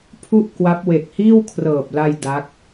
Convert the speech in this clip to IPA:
pʰ u˥˩ ʔ k w a˦˥ p̚ w e˨˩ k̚ h iː˥˩ w kʰ r ɤː˨˩ p̚ l a˧ j d a˦˥ k̚

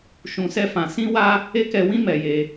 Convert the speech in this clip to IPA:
ʃ ũ˧ s ɛ˦ f ã˧ s ĩ˦ w a˦ | e˦ k ɛ˧ w ĩ˦ m ɛ˧ j e˧

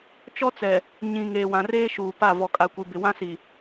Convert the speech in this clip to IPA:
t͡ʃ ɔ˦ t͡s ɛ˨ | ɲ ĩ˨ ŋ eː˨ w ã˨ r eː˦ ʃ uː˨ p a˦˨ v ɔ˨ kʼ a˨ kʷ i˨ b ɪ˨ w ã˦ s i˨

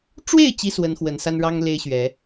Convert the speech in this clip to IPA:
ʈ͡ʂ w e˥˨ ɪ̯ t͡ɕ i˦ s w ə˨˦ n x w ə˨˦ n s a˦ n ɻ ɑ˦ ŋ l e˦ ɪ̯ ɕ ɥ ɛ˨˦

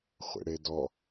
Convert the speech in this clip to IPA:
χʷ ḛ ɽ e d ɔ

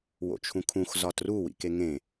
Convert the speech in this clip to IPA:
w o̰ t͡ʃʰ ũ kʰ ũ x z ɒ t r u w ḭ k e ŋ ẽ

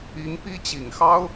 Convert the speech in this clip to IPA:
i˧˥ ŋ p i˥ t͡ɕ i˨˩ ŋ x ɑ˥ ʊ̯

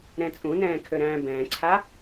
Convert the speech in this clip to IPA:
ɾ ɛ̃ t͡sʼ ũ n ɛ̃ː kʰ ø ɾ æ̃ː b ɛ̃ː ǀʰ a

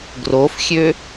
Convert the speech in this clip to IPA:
ɡ r o f xʲ ø

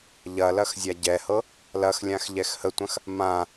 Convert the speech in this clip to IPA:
ʎ ɐ l ɐ x zʲ a ɟ ɛ h ɤ | l ɐ x lʲ ã x ʎ ɛ x h ə tʷ ɐ̃ x | m ã

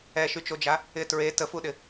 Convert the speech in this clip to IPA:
ɛ ʃ y t͡ʃ o d͡ʒ a | ɪ t ɹ e t ə f u ɗ ɪ

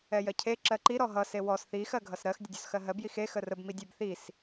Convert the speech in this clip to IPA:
ɛ j ɜ cʰ e ǁ ɜ ǃ i ɾ ɔ ɦ ʌ s e w ɔ s θ i x ɜ ɡʱ ʌ s ɾ ɜ x dʲ ə dʲ ɔ s x ɜ ɦ ɜ b j i x e x ə r ə b m i dʲ ɛ b θ i s

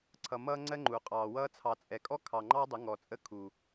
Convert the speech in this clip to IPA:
ǀʰ ʌ˨ m ʌː˦ ŋ͡ǀ ɜ˦ ŋ͡ǃ u˨ qʼ ɑː˨ w ʌː˧ t͡sʰ ɑ˨ t͡sʼ ɛ˨ kʼ ɔ˦ kʰ ɑ˨ ŋ͡ǃ ɑ˦ dˤ ə˨˦ ŋ ɔ˨ t͡sʼ ə˦ kʰ u˨

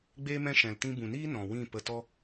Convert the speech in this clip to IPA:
ɡ͡b eː˧ m ɛ̃˧ ʃ ɛ̃˨ l t ĩ˧ b ũ˨ n iː˦ n ɔ̃˨ w ĩ˦˨ p ə˧ t ɔ˦

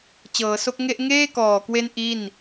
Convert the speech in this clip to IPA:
t͡ɕ ɤː˩˦ s o˦˥ k̚ ŋ e˥˩ ʔ ŋ eː˥˩ k ɔː˨˩ k w e˦˥ n ʔ i˥˩ n

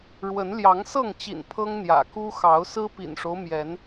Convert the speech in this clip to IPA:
ɻ w ə˨˦ n l j ɑ˨˦ ŋ s ɤ˥˨ ŋ t͡ɕ ḭ˨˩ n pʰ ɤ˦ ŋ n̪ j ä̰˨˩ k u˦ x ɑ˨˦ ʊ̯ s ɹ̩˦ p ḭ˨˩ n ʂ o˦ ʊ̯ m j ɛ˨˦ n

